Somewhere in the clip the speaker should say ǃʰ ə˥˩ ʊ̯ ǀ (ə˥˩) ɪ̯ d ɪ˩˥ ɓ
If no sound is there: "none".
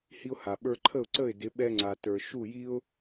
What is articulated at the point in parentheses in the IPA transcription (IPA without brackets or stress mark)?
ə˥˩